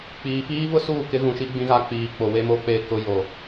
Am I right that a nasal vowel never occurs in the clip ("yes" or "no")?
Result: no